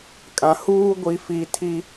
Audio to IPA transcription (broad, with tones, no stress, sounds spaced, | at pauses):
kʼ ã˨ h uː˦ ɡʷ i˦ f i˦ tʰ i˦